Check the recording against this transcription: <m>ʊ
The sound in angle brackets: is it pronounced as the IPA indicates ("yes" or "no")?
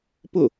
no